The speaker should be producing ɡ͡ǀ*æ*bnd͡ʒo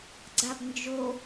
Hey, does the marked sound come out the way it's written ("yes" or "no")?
no